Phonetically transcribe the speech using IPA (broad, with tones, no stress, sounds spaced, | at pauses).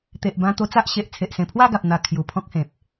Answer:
t̪ e˨ ʔ b ã˧ t̪ o˧ t͡s a˦ ʔ ɕ e˨ ʔ t͡sʰ e˨ ʔ s ẽ˨˩ pʰ w a˥˧ ɡ a˨ p̚ n̪ a˧ kʰ j u˨˩ pʰ ɔ̃˦ k̚ h ẽ˨ p̚